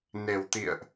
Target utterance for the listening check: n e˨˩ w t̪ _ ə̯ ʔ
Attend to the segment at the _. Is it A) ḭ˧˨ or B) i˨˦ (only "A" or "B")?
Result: A